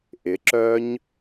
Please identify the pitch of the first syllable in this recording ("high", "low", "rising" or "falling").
rising